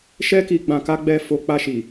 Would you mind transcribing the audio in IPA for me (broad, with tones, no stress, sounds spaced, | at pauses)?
ʃ ɛ˦ k i˧ ɡ͡b ã˧ k a˦ ɡ͡b ɛ˦˨ f o˧ k͡p a˧ ʃ i˨